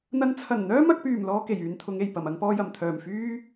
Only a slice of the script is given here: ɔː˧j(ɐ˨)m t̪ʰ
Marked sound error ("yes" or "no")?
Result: yes